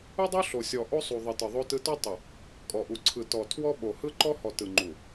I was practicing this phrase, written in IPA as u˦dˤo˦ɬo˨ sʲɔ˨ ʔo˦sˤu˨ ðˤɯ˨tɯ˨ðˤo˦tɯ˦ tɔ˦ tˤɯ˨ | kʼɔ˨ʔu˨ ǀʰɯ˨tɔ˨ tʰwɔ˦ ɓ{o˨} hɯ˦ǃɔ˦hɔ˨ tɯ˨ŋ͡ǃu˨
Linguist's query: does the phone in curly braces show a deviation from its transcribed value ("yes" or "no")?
no